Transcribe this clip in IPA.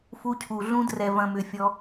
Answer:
f u˧ cʰ u˨ ɮ ũ˧ d r ɛ˨ v ɐ̃˨ m ʏ˨ fʲ ɔ˧

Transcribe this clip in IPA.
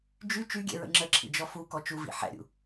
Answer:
d͡ʒ y t͡ʃ y ɡʲ ɛ̰ ɹ ə̰ ŋ͡ǁ ə ǁʰ ḭ d͡ʒ ɔ f u k ɔ t͡ʃ u v ḭ ħ ɛ̰ ɾʲ ṵ

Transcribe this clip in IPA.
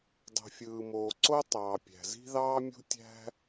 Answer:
dˤ o̤˩ fʲ ɯː˩ m oː˩ ǀ o˦ tˤ ɑː˩ pʲ æ̤˩ z i̤˦ ð ɑː˦ mʲ ṳ˦ tʲ æ̤˦

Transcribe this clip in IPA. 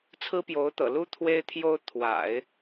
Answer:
t͡sʰ ɹ̩˥ p j o˧˥ ʊ̯ t̪ ɤ̰˨˩ l u˥ t̪ʰ w e˥ ɪ̯ t̪ʰ j o˥ ʊ̯ t̪ʰ w a̰˨˩˦ ɪ̯

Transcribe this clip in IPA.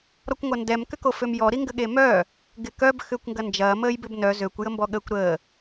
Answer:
ɾ ɔ kʷ ŋʷ ɐ n d ɛ m k ʏ k o f ø m j ɔ ɾ i ŋ ɡ ə ɠ e m œ | ɡ ɪ k œ b x ʏː kʷ ŋ ɡ ɐ n d͡ʒ ɐː m əː j b ɪ b n œ z ø kʷ j ə m b ɔ ɠ əː kʷ ɾ əː

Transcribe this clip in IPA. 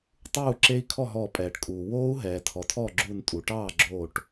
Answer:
tˤ uː˥˩ ǁ e˦˥ i̯ kʰ ɔ˥˩ ɦ ɔ˧˩ pʼ ɛː˩ ʈ kʼ uː˩ w oː˦˥ u̯ ɦ ɛː˩ tʰ ɔ˩ tʰ ɔ˥˩ ɡ͡ǁ u˧˩ n tʼ u˩ ʈ ɑː˥˩ ɡ͡ǁ oː˧˩ ʈ

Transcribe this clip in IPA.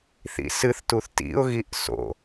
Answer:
θ ḭ s ɨ θ t u θ t ḭ ʊ̯ ɣ i ʔ s o̰

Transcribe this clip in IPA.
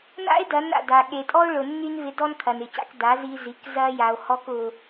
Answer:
n a̰˦ e̯ d ɐ˨˦ n a̰˨ d a˨ ɠ e˨ tʼ ɔ˦ o̯ ɭ ʊ˨ nː y˦ n v ɪ˧ d ɔ˦ n kʰ ɐ˨ n ɪ˨ c a̰˧ k d a˨˦ z i˧ z i˨˦ k z ɐ˦ j a˧ o̯ h ɔ˦ k ʊ˦

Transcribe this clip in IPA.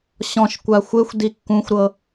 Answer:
ɕ ɔ̃ ʃ kʷ a xʷ e xʷ d i kː ũ xʷ ɾ ɤ

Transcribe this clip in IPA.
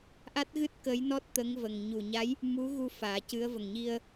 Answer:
ʔ a˦˥ t̚ ɣ ɨ˦˥ t̚ k ə˧˥ j n ɔ˦˥ t̚ t̪ ə˧˥ ŋ v ə˨˩ ŋ ɲ u˨˩ ɲ a˧˥ j | m u˧˥ ɣ u˧ f aː˨˩˦ c ɨ˧˥ ə̯ v ə˨˩ ŋ ɲ i˧ ə̯

